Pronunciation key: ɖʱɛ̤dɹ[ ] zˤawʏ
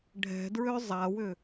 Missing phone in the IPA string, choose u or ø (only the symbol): ø